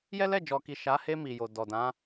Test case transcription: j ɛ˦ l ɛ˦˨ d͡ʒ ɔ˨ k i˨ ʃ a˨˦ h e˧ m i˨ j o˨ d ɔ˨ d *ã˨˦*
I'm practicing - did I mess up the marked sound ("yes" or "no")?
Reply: no